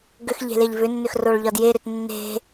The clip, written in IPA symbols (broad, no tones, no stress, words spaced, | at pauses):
ɡʏx ʎe̤leʎvʏnːʏx roɭʎɒdjeɾʏt nːe̤